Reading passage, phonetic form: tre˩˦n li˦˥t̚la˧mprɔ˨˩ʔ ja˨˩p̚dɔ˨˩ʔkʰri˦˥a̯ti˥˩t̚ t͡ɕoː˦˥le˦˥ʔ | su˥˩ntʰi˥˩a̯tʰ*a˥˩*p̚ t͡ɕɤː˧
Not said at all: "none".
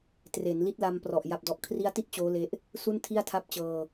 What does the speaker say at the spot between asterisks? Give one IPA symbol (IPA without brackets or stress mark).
a˦˥